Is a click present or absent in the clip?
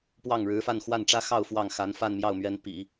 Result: absent